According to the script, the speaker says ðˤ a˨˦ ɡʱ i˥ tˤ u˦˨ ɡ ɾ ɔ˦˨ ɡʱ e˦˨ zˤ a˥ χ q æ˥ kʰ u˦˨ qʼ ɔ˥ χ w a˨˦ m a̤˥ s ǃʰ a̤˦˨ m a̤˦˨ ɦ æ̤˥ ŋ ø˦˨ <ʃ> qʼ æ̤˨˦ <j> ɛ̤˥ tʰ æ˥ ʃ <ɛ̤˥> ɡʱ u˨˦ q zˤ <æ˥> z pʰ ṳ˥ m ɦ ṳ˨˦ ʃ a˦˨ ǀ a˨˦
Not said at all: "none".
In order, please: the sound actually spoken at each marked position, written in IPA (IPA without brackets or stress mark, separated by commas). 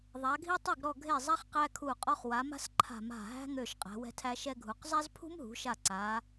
ʃ, w, ɛ˥, æ˥